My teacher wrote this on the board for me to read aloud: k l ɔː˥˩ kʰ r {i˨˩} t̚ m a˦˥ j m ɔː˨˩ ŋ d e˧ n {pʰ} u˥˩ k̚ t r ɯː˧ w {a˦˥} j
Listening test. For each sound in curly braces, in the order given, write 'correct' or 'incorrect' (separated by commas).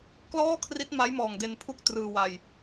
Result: incorrect, correct, incorrect